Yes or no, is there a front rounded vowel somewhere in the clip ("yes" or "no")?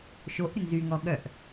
yes